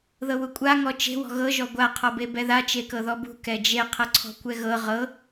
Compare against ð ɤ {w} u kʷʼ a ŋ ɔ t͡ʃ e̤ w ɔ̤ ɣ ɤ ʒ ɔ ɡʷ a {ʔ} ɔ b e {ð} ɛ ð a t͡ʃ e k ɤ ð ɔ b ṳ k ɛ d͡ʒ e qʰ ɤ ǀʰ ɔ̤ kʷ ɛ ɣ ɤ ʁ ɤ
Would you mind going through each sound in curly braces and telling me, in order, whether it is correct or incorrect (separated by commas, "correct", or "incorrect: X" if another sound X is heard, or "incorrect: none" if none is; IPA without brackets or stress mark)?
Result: correct, incorrect: qʰ, incorrect: b